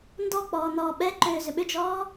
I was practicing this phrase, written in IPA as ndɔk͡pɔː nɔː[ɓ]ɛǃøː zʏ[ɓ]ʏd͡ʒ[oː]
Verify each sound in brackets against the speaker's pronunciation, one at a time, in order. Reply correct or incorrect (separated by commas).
correct, correct, incorrect